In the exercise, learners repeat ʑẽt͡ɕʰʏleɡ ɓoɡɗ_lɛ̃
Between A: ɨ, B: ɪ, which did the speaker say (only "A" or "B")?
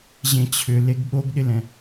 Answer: B